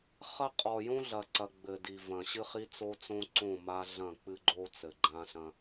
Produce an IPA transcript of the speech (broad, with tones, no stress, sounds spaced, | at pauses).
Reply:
χ ɐ˦ qʼ ɔ˨ j õ˦ ɮ ɐ˨ ǀ ɐ˨ ɡ͡b ɘ˨ d i˨ v ɐ̃˨ ɕ ɨ˦ χ i˦ t͡s o˦ t͡s õ˦ ǀ õ˦˨ m a˦ ɮ ɐ̃˦˨ k͡p ɨ˦ ɡ͡ǃ o˦ t͡s ɘ˨ ɡ͡ǃ ã˦ ɬ ɐ̃˦